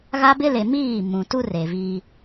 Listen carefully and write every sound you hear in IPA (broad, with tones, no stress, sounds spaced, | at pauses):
ɣ a˦ b ɪ˦ l e˨ m iː˦˨ m ũ˨ t u˦ r e˨ v i˦